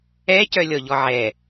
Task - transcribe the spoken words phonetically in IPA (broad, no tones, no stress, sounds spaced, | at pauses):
ɛ c œ lʲ ɔ ʎ ɔ ʕ ɛ